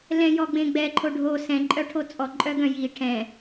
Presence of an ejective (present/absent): present